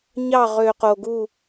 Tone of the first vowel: falling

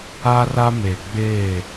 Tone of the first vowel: high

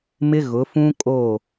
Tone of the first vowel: high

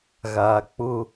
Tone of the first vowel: low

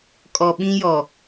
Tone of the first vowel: low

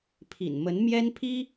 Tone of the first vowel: low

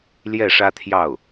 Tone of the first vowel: falling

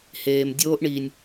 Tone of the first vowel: low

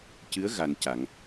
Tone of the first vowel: rising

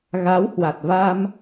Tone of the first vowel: rising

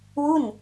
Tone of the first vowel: falling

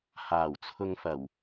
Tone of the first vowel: low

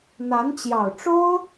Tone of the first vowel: rising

